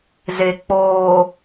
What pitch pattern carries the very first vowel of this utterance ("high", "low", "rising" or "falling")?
low